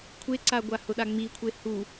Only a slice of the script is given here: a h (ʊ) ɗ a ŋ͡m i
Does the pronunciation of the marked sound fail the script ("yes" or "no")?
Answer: no